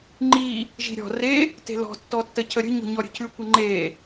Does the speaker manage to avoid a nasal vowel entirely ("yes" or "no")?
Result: yes